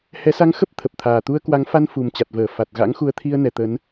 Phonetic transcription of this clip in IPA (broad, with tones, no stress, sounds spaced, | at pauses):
h ɛ˨˦ s a˧ ŋ x ə˦˥ p̚ t̪ʰ ə˨˩ p̚ t̪ʰ aː˨˩ t̪ u˧ ə̯ k w a˨˦ ŋ f a˧ n f u˨˩ m t͡ɕ a˨˩ t̚ v əː˧˩ f a˨˩ t̚ ɣ a̰˧˥ ŋ x u˨˦ ə̯ t̪ʰ i˧ ə̯ n ɛ˨˩ t̪ ə˨˦ n